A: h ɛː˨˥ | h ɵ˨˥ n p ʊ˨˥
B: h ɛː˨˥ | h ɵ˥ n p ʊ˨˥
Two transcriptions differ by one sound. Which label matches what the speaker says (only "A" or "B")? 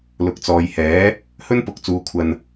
B